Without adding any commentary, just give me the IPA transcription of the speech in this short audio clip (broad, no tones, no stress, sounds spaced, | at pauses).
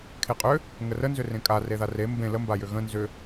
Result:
kʰ e qʼ ʏ | ŋ ə r ə n z ʏ r ẽ kʼ a r e ð a r e m b ẽ l ə m b a j ʏ ɣ ə̃ n z ʏ